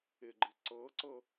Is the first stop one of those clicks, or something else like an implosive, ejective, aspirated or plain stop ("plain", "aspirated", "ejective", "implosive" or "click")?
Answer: click